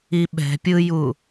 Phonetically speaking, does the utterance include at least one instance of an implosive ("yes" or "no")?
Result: yes